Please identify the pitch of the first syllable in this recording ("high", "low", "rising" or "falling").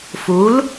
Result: rising